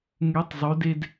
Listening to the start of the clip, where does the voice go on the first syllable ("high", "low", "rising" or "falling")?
rising